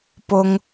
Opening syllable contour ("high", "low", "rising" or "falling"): high